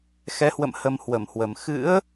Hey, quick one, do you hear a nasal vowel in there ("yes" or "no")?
no